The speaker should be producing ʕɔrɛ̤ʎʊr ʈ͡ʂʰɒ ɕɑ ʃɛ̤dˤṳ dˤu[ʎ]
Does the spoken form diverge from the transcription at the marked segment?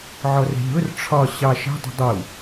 yes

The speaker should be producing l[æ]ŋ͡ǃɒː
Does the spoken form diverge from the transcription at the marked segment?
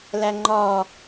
no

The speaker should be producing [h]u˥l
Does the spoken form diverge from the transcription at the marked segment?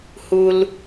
no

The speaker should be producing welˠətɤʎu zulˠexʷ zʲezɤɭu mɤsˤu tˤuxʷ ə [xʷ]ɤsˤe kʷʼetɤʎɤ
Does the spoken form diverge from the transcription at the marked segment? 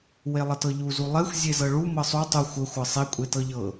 no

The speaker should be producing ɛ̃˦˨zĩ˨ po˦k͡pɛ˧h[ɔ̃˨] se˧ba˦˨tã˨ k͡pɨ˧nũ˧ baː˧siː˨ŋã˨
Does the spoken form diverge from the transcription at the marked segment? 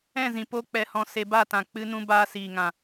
yes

